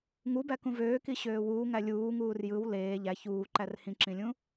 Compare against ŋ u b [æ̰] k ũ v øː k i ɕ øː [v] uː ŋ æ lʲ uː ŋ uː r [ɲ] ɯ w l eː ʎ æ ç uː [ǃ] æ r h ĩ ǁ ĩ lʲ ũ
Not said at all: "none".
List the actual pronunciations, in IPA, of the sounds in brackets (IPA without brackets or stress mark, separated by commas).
æ, w, j, ǃ